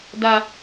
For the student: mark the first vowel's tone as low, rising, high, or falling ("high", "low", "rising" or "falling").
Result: high